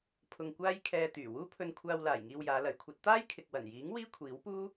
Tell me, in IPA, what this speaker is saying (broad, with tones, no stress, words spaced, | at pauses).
pʰʊ˧ŋkʷaː˥jkʰɛː˧t̪yː˨˩ wuː˥pʰɵ˧nkʷʰaː˧wlaː˨˩j ŋiː˧wjaː˨˧lɐ˨˥jkʷʰɐ˨˥t̚ t̪aː˥jkʰɪ˨k̚wɐ˨˩njiː˨˥ŋ wiː˥kʷʰiː˨˥wpuː˥